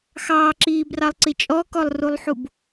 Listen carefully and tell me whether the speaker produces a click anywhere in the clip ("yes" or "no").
yes